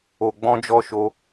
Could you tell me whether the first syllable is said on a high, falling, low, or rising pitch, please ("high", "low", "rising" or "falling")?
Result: low